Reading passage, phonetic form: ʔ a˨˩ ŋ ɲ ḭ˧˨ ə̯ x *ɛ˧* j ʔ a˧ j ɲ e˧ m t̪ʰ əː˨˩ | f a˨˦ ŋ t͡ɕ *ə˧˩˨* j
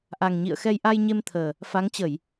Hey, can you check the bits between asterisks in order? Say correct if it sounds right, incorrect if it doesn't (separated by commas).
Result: correct, correct